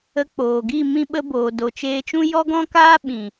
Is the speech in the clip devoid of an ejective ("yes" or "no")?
yes